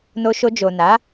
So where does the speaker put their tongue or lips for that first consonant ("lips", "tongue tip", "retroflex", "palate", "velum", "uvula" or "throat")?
tongue tip